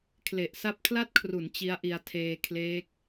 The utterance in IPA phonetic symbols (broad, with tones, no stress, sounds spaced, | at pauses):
kʰ l e˨˩ ʔ s a˦˥ p̚ kʰ l a˥˩ t̚ kʰ r u˩˦ n t͡ɕ i˦˥ a̯ ʔ i˧ a̯ tʰ eː˧ kʰ l eː˦˥ k̚